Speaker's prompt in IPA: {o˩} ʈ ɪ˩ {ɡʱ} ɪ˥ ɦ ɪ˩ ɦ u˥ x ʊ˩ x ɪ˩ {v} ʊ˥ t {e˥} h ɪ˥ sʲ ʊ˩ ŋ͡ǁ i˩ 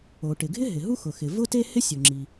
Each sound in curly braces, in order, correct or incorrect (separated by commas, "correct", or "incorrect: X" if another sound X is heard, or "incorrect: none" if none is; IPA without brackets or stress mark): correct, correct, correct, correct